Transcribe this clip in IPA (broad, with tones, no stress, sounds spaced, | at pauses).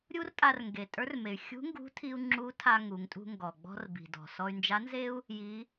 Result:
ɾʲ u˥ r tʼ a˧ r ŋ ɡ e˩ tʼ ə˞˧˥ r m e˩ y̯ xʲ ṳ˧˥ ŋ ɡ ṳ˧˥ tʰ i˧ u̯ ŋ͡ǁ u˧˥ tʰ a˧ ŋ u˩˧ ŋ tʼ ṳ˧ ŋ ɡ ɔ˩ ɡ͡b ɔ̤˧ r b i̤˩ d ɔ̤˩ s ɔ˧ y̯ n d͡ʒ a˧˥ n z e˥ u̯ | j i˩˧